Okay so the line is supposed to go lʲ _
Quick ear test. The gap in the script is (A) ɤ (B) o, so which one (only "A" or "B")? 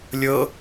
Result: A